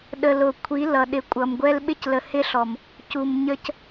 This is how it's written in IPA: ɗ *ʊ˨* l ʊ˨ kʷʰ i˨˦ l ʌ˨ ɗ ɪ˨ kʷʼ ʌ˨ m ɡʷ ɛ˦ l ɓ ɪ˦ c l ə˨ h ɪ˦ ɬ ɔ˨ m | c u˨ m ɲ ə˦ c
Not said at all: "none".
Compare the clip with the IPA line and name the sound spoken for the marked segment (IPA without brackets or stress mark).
ə˨